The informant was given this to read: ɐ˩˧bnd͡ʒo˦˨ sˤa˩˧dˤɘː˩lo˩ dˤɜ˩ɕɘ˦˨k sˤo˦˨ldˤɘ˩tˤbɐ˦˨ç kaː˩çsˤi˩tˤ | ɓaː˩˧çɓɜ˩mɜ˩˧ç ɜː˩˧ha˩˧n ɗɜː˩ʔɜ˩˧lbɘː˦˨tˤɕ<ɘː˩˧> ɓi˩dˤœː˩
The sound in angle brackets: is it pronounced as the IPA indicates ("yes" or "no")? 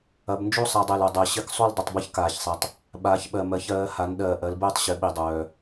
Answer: no